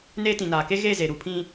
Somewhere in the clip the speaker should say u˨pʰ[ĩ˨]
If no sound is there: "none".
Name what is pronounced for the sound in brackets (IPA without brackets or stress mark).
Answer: ĩ˦